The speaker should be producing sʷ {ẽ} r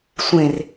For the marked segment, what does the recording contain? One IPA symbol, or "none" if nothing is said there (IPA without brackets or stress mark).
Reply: ẽ